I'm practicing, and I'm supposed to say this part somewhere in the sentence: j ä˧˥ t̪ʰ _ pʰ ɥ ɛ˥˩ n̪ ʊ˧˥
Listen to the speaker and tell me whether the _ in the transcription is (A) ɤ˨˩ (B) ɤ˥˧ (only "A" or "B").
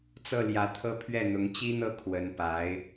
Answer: B